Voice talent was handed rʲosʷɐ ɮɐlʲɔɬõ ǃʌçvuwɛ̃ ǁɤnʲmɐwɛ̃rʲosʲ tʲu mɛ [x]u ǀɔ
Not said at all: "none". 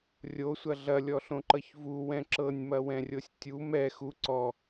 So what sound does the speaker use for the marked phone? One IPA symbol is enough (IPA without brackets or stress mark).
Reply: x